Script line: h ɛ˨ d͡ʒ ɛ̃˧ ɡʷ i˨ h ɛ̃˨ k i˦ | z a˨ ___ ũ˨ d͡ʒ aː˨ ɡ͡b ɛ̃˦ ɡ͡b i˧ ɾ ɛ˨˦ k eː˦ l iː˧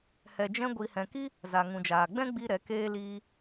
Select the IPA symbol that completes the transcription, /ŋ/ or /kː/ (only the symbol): ŋ